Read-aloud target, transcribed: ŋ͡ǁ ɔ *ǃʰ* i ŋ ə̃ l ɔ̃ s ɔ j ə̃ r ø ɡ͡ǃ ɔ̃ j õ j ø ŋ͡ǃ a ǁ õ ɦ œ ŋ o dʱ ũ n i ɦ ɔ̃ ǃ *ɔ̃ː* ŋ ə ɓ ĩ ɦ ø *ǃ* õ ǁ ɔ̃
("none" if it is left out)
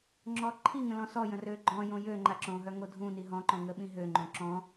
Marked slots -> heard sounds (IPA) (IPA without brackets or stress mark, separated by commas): ǃʰ, ɔ̃, ŋ͡ǃ